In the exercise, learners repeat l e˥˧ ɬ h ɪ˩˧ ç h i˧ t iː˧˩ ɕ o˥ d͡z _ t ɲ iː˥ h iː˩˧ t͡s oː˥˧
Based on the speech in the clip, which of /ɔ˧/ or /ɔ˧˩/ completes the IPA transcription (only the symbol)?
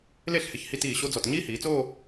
ɔ˧˩